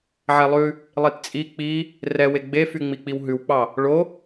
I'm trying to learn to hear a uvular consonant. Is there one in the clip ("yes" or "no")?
no